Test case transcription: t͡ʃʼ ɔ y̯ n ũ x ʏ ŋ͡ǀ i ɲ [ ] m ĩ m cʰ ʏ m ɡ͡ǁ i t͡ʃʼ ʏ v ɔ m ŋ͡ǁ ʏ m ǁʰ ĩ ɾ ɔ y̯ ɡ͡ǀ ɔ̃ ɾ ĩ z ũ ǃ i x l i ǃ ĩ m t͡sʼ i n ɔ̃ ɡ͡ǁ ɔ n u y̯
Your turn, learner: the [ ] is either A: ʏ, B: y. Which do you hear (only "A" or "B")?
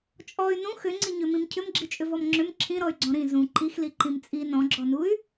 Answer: A